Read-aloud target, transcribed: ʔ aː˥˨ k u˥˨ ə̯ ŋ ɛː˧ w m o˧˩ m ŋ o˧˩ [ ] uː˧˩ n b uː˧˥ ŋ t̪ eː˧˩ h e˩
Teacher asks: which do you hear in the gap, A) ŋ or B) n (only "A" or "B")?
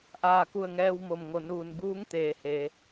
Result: B